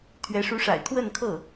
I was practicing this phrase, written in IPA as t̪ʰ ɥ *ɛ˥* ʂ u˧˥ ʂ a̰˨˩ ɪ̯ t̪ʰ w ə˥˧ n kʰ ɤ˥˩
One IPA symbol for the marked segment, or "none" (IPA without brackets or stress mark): ɛ˧˥